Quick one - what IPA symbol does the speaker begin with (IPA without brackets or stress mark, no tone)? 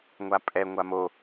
ŋʷ